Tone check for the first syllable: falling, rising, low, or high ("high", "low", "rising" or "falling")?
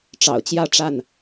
low